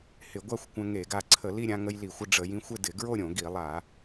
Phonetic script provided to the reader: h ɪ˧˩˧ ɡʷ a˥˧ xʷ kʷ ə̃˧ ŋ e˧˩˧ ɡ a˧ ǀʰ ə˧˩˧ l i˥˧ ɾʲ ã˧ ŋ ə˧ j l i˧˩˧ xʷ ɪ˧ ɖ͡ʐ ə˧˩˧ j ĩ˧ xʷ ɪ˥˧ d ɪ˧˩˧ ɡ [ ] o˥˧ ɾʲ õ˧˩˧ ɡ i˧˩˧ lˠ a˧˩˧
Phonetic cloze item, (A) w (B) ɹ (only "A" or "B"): B